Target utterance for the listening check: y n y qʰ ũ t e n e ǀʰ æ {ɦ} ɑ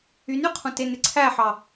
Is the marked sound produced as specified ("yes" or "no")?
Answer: no